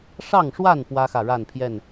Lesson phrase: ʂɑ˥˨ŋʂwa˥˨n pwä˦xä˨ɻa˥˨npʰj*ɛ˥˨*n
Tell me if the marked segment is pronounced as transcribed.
yes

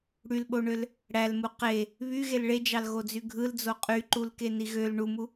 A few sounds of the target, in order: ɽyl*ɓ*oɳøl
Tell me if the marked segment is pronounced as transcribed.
yes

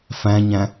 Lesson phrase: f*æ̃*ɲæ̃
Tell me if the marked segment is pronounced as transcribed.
yes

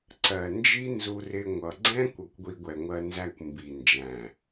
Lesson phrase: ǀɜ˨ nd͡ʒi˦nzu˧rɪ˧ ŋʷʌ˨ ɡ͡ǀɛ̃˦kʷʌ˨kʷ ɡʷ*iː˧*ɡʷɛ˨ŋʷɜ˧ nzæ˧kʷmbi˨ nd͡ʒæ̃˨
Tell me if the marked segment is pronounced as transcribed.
no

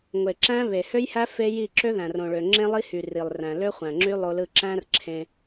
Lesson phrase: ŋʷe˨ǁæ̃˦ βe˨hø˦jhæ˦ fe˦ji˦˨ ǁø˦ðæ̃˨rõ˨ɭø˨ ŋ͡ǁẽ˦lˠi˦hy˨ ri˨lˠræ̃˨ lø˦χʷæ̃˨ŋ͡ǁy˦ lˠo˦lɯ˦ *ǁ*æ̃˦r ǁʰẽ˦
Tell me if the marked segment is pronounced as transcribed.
yes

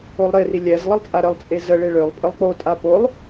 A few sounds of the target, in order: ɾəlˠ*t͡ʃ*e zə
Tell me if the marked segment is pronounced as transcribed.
no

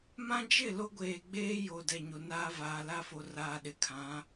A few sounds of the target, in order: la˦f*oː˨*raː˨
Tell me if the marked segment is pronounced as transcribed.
no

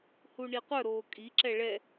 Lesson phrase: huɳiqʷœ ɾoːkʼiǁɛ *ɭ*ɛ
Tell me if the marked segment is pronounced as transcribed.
yes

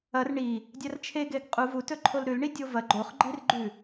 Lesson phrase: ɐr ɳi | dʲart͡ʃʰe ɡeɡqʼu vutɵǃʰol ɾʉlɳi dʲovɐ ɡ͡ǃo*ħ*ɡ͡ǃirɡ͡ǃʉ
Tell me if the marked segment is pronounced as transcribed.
no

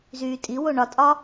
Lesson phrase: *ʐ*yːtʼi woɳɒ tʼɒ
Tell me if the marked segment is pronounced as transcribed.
no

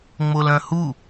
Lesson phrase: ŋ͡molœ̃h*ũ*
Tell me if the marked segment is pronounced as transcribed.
no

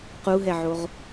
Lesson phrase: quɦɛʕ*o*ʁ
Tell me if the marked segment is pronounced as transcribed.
yes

